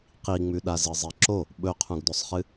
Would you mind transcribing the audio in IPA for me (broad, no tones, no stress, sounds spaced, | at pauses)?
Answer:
q i ŋ͡m ʉ ɗ a z ɨ zˤ i ǁ o | ɓ ɵ qʰ ũ ɡ d ɵ sˤ χ ɨ